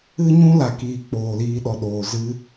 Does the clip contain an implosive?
yes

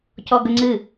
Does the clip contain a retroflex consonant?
no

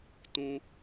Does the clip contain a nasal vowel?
yes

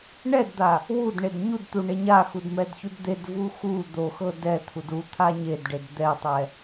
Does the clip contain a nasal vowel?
no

